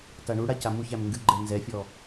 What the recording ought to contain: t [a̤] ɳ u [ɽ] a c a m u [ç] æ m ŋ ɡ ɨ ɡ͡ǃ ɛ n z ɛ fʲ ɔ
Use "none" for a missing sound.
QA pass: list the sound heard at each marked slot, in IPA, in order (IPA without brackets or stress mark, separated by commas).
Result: a, ɽ, ç